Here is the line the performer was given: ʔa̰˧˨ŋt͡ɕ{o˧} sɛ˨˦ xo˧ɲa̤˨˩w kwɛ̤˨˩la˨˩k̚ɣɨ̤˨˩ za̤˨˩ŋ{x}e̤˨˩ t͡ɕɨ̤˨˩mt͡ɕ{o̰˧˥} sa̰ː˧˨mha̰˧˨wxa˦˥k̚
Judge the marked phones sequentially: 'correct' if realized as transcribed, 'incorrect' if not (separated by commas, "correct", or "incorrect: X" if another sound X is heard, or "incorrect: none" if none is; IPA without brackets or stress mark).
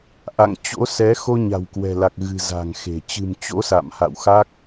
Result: incorrect: o̰˧˥, correct, correct